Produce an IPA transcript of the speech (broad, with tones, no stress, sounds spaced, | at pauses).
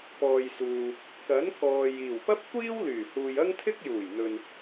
p ɔː˨ j s uː˨ | k ɐ˨˥ n k ɔː˨ j iː˨˩ w p ɐ˥ p̚ kʷ iː˥ w l yː˨˩ h uː˨ j ɐ˥ ŋ t̪ʰ ɪ˥ k̚ j uː˨˩ j n̪ ɵ˨ n